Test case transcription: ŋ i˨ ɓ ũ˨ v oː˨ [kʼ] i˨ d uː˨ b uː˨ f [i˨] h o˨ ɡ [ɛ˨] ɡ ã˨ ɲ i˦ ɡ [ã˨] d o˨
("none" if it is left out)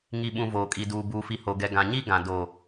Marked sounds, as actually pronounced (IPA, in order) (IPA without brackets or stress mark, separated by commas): kʼ, i˨, ɛ˨, ã˨